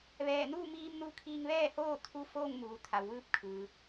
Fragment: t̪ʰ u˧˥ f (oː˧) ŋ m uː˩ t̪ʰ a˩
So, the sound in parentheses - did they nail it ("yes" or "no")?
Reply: no